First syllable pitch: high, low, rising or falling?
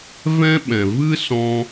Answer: high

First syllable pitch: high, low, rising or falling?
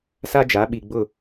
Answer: high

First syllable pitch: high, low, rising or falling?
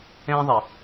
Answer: high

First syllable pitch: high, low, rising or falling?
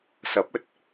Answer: rising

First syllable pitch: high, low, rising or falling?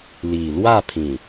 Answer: low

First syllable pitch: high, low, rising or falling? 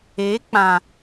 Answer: rising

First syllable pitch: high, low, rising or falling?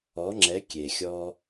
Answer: rising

